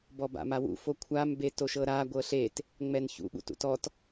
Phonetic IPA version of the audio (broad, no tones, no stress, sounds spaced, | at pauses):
b ɔ b a̰ m a w ṵ f o kʷʰ a m b e t o ʃ ɤ ɾ a ɡʷ ɤ ɬ e t | ŋ͡m ɛ n ç ṵ ɓ ṵ t ṵ t ɔ t